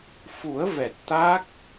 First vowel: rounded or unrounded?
rounded